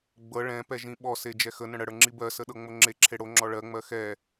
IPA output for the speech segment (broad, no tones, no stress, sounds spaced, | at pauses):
ɡ͡b ɤ ɭ ɛ̃ p ɛ ʒ ĩ ɓ ɔ s e d͡ʒ ɛ x ə n ə̃ ɽ ə ɽ ə˞ ŋ͡ǁ i b ɜ s ə ɗ ɤ ŋ͡m o ŋ͡ǁ e ǁʰ e ɽ o ŋ͡ǁ ɔ ɭ ɜ ŋ͡m ɜ x ɛ